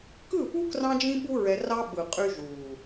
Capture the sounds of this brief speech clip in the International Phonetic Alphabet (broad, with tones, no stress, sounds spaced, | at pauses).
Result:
k ɯ˦˨ p u˦ k r ɑ̃˦ d͡ʒ ĩ˦ ɓ u˦ ɹ ɛ˧ r ɑ˦ ɓ ɯ˨ qʼ y˧ ʒ u˨